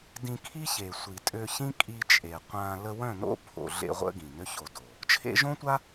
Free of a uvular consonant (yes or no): no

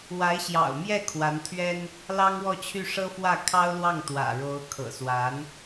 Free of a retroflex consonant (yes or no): no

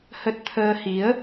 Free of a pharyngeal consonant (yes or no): yes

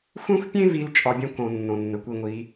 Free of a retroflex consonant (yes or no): yes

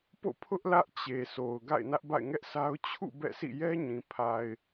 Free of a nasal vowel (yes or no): no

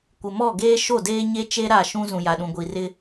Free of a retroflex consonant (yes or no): yes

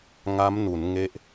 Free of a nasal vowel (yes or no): yes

